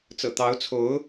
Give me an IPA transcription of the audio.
t͡s ɤ̰˨˩ t̪ ɑ˧˥ ʊ̯ t͡sʰ o˧˥ ʊ̯

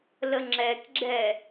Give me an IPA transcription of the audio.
l ə ŋ͡ǁ ɛ k ɡ͡ǁ ɛ

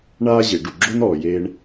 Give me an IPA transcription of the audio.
ɳ aː˥ ʑ e˩ ɖ u˩ ɡ͡ǁ o˥ n ɔː˩ j eː˧ ɳ

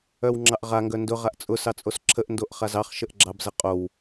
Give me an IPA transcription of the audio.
œ w ŋ͡ǁ ɑ ʔ ʁ a ŋ ɡ œ n d ʊ ʁ a ʔ t͡sʼ ʊ s ɑ t͡sʼ o s ǁʰ ə ʔ n d o ʔ χ a z ɑ χ ʃ ə ʔ ɡ͡ǁ ɑ b z ə qʼ o w

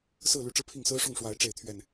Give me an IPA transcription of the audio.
s ɹ̩˥˨ l y˨˦ ʈ͡ʂ ɻ̩˧ pʰ i˥˨ ŋ s ɹ̩˦ ʂ ʊ˥˨ ŋ ʂ w a˨˦ ɪ̯ ʈ͡ʂ e˥˨ ɪ̯ t̪ʰ ɥ ɛ˥˨ n

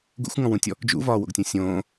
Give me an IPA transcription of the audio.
ɡ ṵ xʷ ŋ ɔ̃ w ũ tʲ ɔ | d͡ʒ ṵ v ɒː w o̰ ɡ tʲ õ sʲ õː

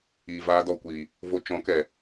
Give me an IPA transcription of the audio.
iː˨ v aː˧ d ɔ˨ kʷ iː˨ | v o˧ t͡ʃ ɔ̃˨˦ k ɛ˨

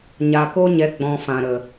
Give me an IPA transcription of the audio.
ɲ a˨ k o˧ ɲ ɛ˨ ɡ͡b ɔ̃˨ f ã˨ ɾ ə˨

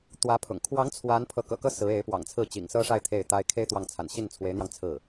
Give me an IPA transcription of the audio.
t̪ w ä˧˥ pʰ ʊ̰˨˩ ŋ kʰ w ɑ˧˥ ŋ t͡sʰ w a˧˥ n pʰ ɤ˧˥ k ɤ̰˨˩ k ɤ˥ s ɹ̩˧˥ e˧˥ ɪ̯ p w ɑ̰˨˩ ŋ t͡sʰ ɹ̩˥˩ t͡ɕ ḭ˨˩ ŋ s ɤ˥ ʂ a˥˧ ɪ̯ t̪ʰ e˥˩ ɪ̯ t̪ a˥ ɪ̯ kʰ e˥ ɪ̯ t̪ w ɑ˥˩ ŋ t͡sʰ a̰˨˩ n ɕ i˥˩ n t͡sʰ w e˧˥ ɪ̯ n̪ j ɑ˧ ŋ t͡sʰ ɹ̩˥˩

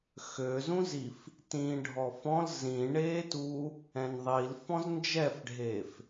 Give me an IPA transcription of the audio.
x ø z ũ z i f | t ĩː ɖʱ ɔ f ɔ̃ l z ĩ ɳ eː t uː | ɛ̃ n ðˤ i l f ɔ̃ z n d͡ʒ ɛ f ɖʱ eː f

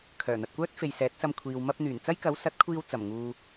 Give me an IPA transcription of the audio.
kʰ œː˨˩ n̪ ɐ˨ t̚ kʷ œː˥ t̚ f e˨ j s ɛː˨˥ t̚ s ɐ˧ m kʷʰ iː˨ w m ɐ˧ p̚ n̪ yː˨˩ n t͡s ɐ˥ j k ɐ˨˥ w s ɐ˨˥ t̚ kʷʰ iː˧ w t͡s ɐ˨˩ m ŋ uː˨

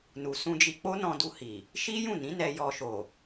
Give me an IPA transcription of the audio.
n u˨ s ũ˧ d͡ʒ i˧ k͡p o˦ n ɔ̃˧ d u˧ h i˨ | ʃ i˦ j ũ˦˨ n ĩ˨˦ n ɛ˧ j ɔ˧ ʃ o˨

